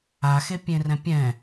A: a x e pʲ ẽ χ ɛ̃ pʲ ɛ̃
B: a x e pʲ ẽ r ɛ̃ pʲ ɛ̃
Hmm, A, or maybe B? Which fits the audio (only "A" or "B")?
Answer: B